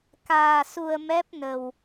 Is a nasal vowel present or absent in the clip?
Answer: absent